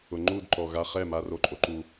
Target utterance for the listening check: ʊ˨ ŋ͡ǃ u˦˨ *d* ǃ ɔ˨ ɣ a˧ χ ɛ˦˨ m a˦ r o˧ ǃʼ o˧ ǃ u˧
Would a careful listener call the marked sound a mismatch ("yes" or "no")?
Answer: no